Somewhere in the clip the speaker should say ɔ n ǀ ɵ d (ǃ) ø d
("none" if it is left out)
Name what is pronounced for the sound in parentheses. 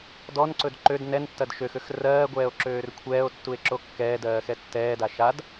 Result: ǃ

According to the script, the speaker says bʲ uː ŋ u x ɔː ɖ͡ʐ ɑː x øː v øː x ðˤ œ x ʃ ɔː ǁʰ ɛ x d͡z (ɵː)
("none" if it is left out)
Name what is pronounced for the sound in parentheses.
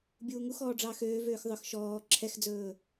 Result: ɵː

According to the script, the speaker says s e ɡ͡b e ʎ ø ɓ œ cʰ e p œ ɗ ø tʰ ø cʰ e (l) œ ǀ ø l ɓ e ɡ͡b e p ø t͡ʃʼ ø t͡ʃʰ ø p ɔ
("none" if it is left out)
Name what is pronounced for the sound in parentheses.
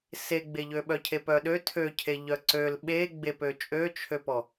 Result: ʎ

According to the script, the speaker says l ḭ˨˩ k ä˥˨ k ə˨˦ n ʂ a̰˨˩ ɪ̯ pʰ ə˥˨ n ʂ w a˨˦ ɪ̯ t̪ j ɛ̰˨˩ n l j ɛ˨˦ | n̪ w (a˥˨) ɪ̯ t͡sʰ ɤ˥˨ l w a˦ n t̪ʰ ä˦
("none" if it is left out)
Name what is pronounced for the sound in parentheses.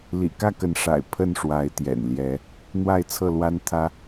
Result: a˥˨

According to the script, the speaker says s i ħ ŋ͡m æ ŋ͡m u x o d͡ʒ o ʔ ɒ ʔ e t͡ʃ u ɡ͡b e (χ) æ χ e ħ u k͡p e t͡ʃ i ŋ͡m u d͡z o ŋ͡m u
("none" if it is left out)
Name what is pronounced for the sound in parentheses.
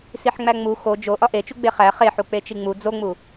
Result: χ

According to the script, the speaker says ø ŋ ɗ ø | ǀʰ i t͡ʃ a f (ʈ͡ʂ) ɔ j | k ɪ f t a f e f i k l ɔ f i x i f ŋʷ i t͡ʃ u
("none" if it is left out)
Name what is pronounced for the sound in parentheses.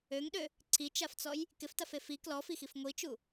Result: t͡s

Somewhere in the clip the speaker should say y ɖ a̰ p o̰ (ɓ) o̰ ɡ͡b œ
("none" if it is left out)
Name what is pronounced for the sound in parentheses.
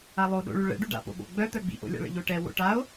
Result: ɓ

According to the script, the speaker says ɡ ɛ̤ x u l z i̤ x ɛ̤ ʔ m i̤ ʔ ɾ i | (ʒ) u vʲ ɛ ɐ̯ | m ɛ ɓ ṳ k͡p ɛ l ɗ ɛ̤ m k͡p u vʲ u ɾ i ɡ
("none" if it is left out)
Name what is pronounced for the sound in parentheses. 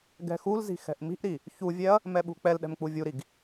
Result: ç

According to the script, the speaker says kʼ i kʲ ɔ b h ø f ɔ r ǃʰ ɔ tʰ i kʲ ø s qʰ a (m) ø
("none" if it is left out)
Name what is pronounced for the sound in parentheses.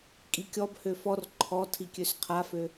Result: f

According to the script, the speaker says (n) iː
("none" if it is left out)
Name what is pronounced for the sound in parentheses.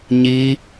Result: ɲ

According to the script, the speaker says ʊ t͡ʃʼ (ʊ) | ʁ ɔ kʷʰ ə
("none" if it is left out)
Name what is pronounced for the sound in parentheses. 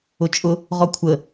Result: ʊ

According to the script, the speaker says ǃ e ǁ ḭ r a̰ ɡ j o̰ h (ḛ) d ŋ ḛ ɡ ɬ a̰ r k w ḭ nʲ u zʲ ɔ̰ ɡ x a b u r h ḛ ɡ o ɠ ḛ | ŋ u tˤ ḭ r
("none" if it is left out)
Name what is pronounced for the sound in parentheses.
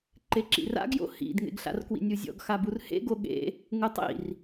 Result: ḭ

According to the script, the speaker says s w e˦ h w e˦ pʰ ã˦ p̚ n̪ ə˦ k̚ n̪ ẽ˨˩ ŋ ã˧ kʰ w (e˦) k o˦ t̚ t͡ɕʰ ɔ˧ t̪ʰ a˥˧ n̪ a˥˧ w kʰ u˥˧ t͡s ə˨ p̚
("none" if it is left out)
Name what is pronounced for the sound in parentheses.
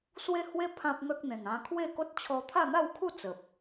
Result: e˥˧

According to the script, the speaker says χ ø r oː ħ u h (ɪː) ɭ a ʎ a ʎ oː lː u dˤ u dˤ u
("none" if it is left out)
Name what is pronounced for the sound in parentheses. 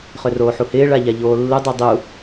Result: ɪː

